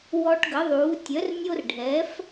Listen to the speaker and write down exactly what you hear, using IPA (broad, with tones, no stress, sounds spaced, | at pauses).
w ɔ˦ ʈ ɡ ə˩˥ ðˤ uː˩˥ tʲ œ˩˥ r nʲ o˦ r ɖʱ ɛ˩˥ f